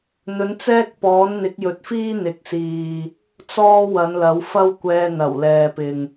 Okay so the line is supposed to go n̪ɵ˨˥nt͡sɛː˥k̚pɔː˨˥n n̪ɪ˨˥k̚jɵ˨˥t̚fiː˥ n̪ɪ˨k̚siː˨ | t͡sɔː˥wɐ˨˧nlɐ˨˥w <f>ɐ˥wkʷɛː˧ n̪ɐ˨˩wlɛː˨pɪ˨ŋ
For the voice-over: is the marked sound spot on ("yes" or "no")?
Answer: yes